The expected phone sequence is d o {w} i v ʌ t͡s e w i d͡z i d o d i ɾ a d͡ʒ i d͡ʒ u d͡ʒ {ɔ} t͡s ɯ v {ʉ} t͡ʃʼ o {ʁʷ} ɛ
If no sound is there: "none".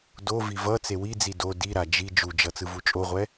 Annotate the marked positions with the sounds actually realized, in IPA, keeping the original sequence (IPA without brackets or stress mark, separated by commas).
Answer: v, ʌ, u, ʁʷ